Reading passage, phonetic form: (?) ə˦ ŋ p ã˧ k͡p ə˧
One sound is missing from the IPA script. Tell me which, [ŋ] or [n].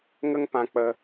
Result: ŋ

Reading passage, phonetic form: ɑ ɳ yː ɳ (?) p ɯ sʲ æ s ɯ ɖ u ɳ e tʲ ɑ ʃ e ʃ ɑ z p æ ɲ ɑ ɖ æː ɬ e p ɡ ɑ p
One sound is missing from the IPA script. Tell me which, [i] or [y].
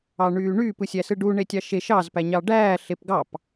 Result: y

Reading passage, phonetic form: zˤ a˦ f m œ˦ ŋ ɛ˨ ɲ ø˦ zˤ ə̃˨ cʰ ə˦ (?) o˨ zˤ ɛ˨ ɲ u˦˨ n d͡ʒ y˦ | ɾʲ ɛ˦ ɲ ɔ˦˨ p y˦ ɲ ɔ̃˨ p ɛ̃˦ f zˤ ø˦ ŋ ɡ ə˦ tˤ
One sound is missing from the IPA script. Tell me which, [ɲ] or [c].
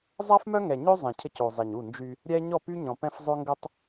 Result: c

